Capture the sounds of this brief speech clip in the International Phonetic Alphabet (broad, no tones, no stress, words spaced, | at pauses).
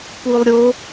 pulˠɾʲo